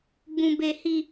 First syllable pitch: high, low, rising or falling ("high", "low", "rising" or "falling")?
low